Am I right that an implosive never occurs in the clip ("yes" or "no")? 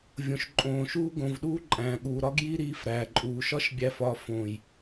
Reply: no